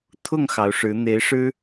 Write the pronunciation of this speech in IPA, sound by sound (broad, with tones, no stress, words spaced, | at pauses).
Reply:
t̪ʰʊ˥˩ŋ xɑ˧˥ʊ̯ʂɻ̩˧˥ n̪e˧˥ɪ̯ ʂɻ̩˥